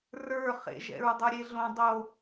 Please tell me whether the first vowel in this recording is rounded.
no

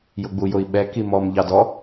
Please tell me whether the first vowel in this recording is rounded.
yes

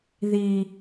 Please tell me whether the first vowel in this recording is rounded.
no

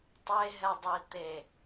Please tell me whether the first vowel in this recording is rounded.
no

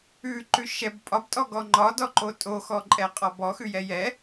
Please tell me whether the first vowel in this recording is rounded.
yes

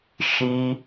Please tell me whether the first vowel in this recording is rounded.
no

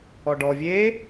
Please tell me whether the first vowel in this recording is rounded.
yes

